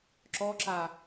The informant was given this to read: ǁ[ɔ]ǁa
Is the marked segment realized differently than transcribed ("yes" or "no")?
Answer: no